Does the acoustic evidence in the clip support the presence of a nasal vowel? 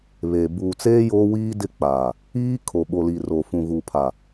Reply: yes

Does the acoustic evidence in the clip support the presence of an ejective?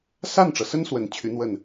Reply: no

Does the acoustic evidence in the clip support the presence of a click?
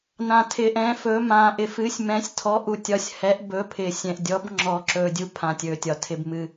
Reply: yes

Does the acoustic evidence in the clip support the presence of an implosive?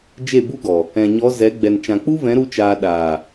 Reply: yes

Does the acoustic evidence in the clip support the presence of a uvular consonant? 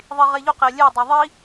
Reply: yes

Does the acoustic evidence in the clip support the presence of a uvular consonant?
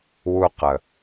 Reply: yes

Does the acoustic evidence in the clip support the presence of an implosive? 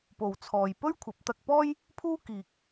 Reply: no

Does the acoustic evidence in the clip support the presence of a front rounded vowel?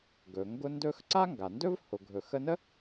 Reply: no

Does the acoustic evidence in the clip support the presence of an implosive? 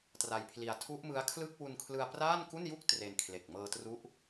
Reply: no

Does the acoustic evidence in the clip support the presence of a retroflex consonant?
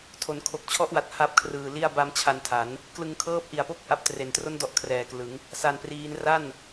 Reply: no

